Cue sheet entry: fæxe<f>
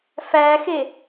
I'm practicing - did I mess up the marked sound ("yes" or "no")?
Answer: yes